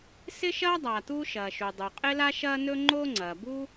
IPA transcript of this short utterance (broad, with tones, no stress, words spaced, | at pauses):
sɪ˥ʃɐː˥ dˤa˩ t̪uː˥ʃɐː˩ʃu˩dˤu˩ qʼɪ˥la˥ʃɐː˥nɵ˥ ŋ͡ǃo˥ŋ͡ǀɐː˩bu˥